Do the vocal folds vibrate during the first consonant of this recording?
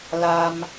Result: yes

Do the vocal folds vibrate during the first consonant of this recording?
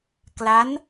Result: no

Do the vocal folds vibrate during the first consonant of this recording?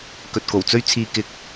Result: no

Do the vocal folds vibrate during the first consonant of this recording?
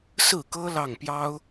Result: no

